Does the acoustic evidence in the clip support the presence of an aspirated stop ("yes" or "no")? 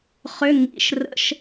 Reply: no